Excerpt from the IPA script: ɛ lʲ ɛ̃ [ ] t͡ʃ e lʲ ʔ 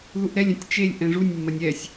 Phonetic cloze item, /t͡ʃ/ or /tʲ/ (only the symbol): tʲ